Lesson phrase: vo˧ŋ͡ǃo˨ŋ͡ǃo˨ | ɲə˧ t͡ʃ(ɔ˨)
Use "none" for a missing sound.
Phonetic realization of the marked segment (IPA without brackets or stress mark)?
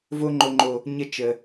ə˨